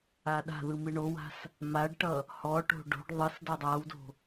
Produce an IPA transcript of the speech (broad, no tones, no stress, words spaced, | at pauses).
aɗa̤ðɯ mɨɳowa̤s | maɖʈʌ | hɔʈo̤ ɖo̤ɖ ðˤɯs dʌdˤawdo̤